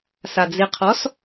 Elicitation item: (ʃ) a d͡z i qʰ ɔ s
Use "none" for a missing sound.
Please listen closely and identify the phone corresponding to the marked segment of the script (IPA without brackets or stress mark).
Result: s